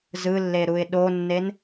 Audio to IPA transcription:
z ɯ lː e ɾ u ɪ̯ ɗ o nː e n

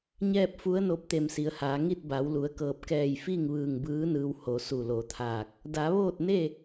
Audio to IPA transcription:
ɲ ɛː˥˨ p̚ f u˧˥ ə̯ n o˧˥ p̚ t̪ e˧˩ m s i˩˧ ə̯ h aː˩˧ ŋ i˥˨ t̚ b a˩˧ w l u˩˧ ə̯ k ɤː˧˩ p̚ k ɛː˧˩ j f i˥˨ ŋ ʋ ɯː˧˩ ŋ b ɯː˧˥ n ɯː˧ w h o˩˧ s u˧˩ l o˩˧ t̪ʰ aː˧˩ k̚ | d a˩˧ ʋ oː˥˨ t̚ n e˥˨

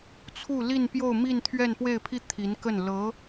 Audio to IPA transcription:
t͡sʰ u˥˧ l i˥˧ n p j o˥˧ ʊ̯ m i˥˧ n t̪ʰ ɥ ɛ˥˧ n p w e˥˧ ɪ̯ pʰ i˥˩ t̪ʰ i˧˥ n k ə˥˩ n l ɤ˧˥

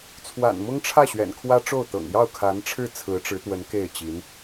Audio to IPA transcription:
t͡sʰ w a̰˨˩ n m ʊ˥ ŋ ʈ͡ʂʰ ä˥˩ ɕ ɥ ɛ̰˨˩ n kʰ w ä˥ ʈ͡ʂ o˥˩ ʊ̯ t̪ ɤ̰˨˩ ŋ j ɑ˥˩ ʊ̯ kʰ a˧˥ n ʈ͡ʂʰ ɻ̩˥˩ t͡sʰ ɹ̩˧˥ ʈ͡ʂ ɻ̩˧˥ t̪ w ə˧˥ n k e˥˩ ɪ̯ t͡ɕ i˧˥ n

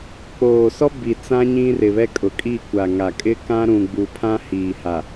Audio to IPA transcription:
k͡p oː˨ s ɔ˦ b i˨ t͡s ã˦ ɲ ĩ˦ r ɪ˨ β ɛ˦ kʼ ʊ˨ kʼ i˦˨ kʷ a˨ ŋ a˨ kʼ ɪ˦ k ã˦ ɾ ũ˨ ɡ͡b u˨ pʰ ã˦ h iː˨ h a˨

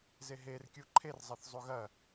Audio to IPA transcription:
z e ɦ e r kʲ u ǃʰ e r zˤ ɐ θ zˤ u ɣ ɐ

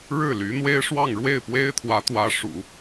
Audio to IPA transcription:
ɻ ɻ̩˥˩ l y˧˥ n̪ w e˥ ɪ̯ ʂ w ɑ˥˧ ŋ ɻ w e˥˩ ɪ̯ p w e˥ ɪ̯ t̪ʰ w ä˧˥ t̪ w ä˧˥ ʂ ṵ˨˩˦

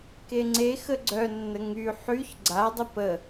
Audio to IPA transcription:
k e ŋ͡ǀ e x ə ɡ͡ǀ œ nː ə ŋ y ħ y ç ɡ͡ǀ a dˤ ə p ə

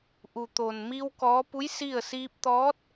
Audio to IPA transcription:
ʔ u˩ t̪ oː˩ n m i˧ w k ɔː˧˥ p u˧˥ j s i˥˨ ə̯ s iː˧ p̚ t̪ ɔː˧˥ t̚

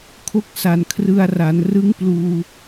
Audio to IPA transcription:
kʰ o˥˩ k̚ s a˨˩ n kʰ r ɯ˧ a̯ r a˩˦ n r ɯ˦˥ ŋ p l uː˧

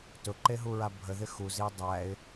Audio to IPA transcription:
t ʊ ǃ e ɦ u ɹ a bʱ ə ð ɪ x u z i ə̯ dˤ æ ɪ̯

